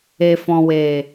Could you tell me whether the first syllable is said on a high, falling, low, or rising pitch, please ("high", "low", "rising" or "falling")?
low